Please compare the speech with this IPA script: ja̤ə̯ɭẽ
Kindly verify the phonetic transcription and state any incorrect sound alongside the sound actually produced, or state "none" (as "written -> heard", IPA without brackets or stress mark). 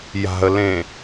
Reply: ɭ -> l